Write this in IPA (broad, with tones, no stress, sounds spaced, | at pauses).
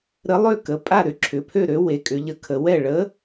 ɾ ə˨˥ lˠ ø˥˩ k ə˩˧˩ pʼ a˥˩ ɾ ʏ˥˩ ǁʰ ʏ˩˧˩ pʰ ø˥˩ ɾ ø˨˥ w e˨˥ kʼ ʏ˨˥ ʎ ə˥˩ kʰ ə˨˥ w ɛ˥˩ ɭ ə˨˥